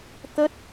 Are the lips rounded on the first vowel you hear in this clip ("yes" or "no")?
no